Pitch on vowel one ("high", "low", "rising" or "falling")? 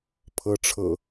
rising